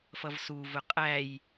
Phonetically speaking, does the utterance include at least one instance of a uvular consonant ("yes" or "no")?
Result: yes